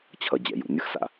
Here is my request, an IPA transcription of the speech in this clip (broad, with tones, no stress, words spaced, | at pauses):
t͡ɕʰʌ˨ d͡ʑɛ̰˨jṵ˨ nʲɯ˦xsa̰˦˨